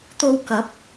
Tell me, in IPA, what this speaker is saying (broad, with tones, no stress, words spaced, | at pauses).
t̪o˧wkɐ˨˥p̚